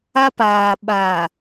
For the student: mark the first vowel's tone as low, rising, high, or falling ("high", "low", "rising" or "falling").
high